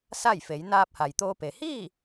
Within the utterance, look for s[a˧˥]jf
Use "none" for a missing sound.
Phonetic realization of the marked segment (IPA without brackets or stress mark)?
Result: a˥˨